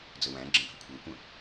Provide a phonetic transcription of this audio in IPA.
d͡zəwæ̃ɡ͡ǁə̃ bʱəkʷʰə˞kʷə̃

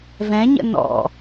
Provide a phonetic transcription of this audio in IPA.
vɛ̃ɲə̰ nɔ̰

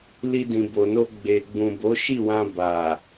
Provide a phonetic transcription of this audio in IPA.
li˧dĩ˨bo˨no˧ ɡ͡be˨ɡ͡bũ˨ bo˨˦ʃi˦˨wã˧ ba˨

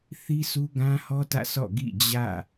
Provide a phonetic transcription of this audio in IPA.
θi˦su˦ɡã˦hɔ˦ tä̰˦˨sʰɔ̰˦˨ ɡḭ˦˨ d͡ʑä̰˦˨

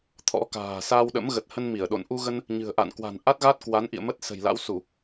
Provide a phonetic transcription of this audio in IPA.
t̪ʰɔ̰˧˥ka̤ː˨˩ sa˧wɗə̰˧˥m ɣə˨˩t̚hə˧n mi˧˩ə̯ɗo̰˧˨n ʔu˧ɣə˧n | ɲɨ̤˨˩ə̯ʔa̰˧˨nkwa̤˨˩n ʔa˦˥t̚ɣa˦˥t̚kwa˨˦nʔḭ˧˨ə̯ mə˦˥t̚sə̤˨˩jla̰˧˥wsu˧˩˨

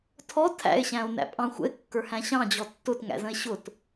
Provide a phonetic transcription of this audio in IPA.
tʰɔ tʰæ̰e̯ ɕæ̃o̯næ̰pʼɑ̃xʷə̰e̯ kːə˞hæ̃ɕɑ̃ d͡ʑɔtːʊt ŋæ̰zə̃e̯ɕʊt

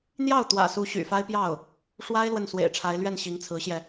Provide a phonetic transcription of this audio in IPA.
n̪jɑ˥˩ʊ̯ t̪wä̰˨˩su˧˥ ɕy̰˨˩fa˥ɪ̯pjɑ˥˩ʊ̯ | ʂwa˥ɪ̯ lwə˥˩nswḛ˨˩ɪ̯ʈ͡ʂʰa˧˥ɪ̯ lɥɛ˥˩nɕi˧˥ŋt͡sʰɹ̩˧˥ɕjɛ˧

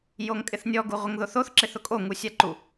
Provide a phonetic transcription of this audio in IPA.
joŋkʼɪθnʲɔ ɡuʁʷɪŋðoθoθ ǁeθʊkʼo ŋusʲaǃu

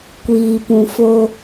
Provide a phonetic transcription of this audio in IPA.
kʷiː˨pũ˨fo˦

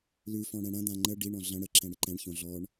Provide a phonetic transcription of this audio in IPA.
lʉfɔ̃ ɽɛ̃ɽɐ̃d̪ã ŋ͡ǃə ɖiɳɔ̃ ɮɐ̃ ɽəǁɛ̃ ɽɪǃɛ̃ɳçõ ɮɔɳ

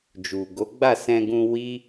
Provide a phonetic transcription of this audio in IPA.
d͡ʒu˨ɡo˨˦ɡ͡ba˦˨ sɛ̃˧ɡũ˧wi˦

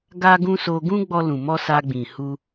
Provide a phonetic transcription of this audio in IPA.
ɡa˧ɡũ˧ so˧ɡũ˦ ɡ͡bɔ˧lũ˨mɔ˧ sa˧ɡ͡bĩ˨hu˧

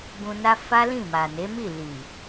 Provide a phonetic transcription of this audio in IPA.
bũ˧na˦ fa˦lĩ˦˨ma˨ne˨˦ mi˦˨li˨

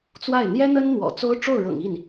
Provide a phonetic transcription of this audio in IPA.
t͡swa˥˩ɪ̯ n̪jɛ˥n̪ə˥n n̪wɔ̰˨˩t͡so˥ʊ̯ ʈ͡ʂo˥˩ʊ̯ɻɤ̰˨˩ŋi˥˩n

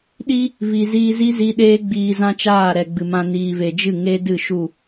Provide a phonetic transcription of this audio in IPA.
ɗi˦ | vi˨ziː˧zi˦zi˧ ɗeː˦ɡ͡biː˧zã˦t͡ʃaː˦˨ ɾɛ˨ɡ͡bɨ˨mã˧ niː˨ve˨d͡ʒɨ˦˨ ŋe˦ dɨ˦˨ʃu˦˨

